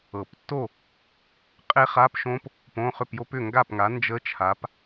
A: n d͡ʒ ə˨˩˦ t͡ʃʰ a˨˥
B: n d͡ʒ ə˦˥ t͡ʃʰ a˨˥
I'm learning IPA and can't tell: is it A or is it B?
B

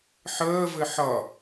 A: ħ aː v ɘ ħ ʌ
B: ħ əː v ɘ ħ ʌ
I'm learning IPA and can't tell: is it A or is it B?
B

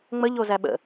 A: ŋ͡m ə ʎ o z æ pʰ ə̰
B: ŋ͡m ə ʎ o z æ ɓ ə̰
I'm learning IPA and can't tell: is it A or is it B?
B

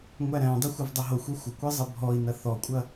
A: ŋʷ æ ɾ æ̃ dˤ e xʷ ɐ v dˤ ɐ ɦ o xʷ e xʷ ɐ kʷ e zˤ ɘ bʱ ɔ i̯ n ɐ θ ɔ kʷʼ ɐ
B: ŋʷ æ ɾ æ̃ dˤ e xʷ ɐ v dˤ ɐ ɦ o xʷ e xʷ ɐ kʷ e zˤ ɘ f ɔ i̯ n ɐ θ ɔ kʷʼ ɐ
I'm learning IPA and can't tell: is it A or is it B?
A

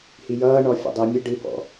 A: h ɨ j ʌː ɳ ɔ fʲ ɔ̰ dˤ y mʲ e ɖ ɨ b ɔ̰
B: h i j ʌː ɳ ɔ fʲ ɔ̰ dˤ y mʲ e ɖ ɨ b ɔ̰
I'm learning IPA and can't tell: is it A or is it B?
B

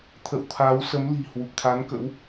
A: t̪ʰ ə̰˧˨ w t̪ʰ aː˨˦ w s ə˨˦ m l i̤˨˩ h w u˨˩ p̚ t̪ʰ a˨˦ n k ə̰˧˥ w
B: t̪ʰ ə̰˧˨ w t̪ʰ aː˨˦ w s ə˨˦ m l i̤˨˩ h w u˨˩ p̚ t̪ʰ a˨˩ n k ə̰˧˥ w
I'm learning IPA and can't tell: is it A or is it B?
A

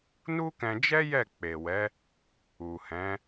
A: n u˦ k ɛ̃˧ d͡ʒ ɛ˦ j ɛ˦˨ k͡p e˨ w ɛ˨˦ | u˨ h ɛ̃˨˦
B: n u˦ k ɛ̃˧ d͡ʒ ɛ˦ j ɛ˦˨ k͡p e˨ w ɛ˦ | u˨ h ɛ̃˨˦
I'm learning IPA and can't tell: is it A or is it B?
A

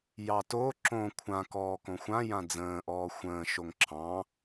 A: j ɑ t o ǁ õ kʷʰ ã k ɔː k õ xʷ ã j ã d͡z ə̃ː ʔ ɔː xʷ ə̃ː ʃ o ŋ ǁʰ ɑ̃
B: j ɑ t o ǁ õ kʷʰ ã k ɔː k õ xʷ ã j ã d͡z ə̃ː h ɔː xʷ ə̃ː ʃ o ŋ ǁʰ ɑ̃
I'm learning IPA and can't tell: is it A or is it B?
A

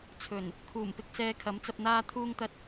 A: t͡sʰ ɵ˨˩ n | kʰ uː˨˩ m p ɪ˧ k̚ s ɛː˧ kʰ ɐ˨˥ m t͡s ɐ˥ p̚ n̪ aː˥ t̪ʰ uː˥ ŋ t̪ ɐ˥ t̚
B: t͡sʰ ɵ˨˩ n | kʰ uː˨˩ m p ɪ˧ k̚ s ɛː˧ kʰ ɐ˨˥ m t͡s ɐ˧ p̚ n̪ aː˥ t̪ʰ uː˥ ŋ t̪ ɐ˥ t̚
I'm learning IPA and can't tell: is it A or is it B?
B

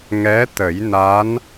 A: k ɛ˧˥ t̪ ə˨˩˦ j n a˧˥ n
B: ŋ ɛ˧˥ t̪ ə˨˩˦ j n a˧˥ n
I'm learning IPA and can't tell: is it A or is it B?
B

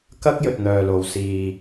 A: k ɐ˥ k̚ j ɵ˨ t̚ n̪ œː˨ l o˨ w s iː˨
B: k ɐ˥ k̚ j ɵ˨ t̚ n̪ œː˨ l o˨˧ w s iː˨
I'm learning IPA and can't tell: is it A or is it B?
A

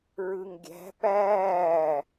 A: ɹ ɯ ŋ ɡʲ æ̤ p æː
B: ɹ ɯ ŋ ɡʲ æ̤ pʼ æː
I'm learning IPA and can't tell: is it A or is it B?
A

